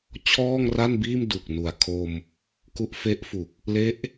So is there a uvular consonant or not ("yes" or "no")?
no